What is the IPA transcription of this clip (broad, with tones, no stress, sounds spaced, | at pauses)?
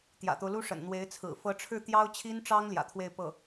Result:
t̪ j ä̰˨˩ t̪ o˦ ʊ̯ l u˥ ʂ ə̰˨˩ n n̪ w e˧˥ ɪ̯ t͡sʰ ɹ̩˨˩ f ɤ˧˥ ʈ͡ʂʰ ɻ̩˥˩ t̪ j ɑ˥ ʊ̯ t͡ɕʰ i˥ n ʈ͡ʂ ɑ˥ ŋ l j ä̰˨˩ t̪ʰ w e˥˧ ɪ̯ p ɤ˥˩